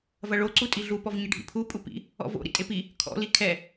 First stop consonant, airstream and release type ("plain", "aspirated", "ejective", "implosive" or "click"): click